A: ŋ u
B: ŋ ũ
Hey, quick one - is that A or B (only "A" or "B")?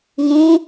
B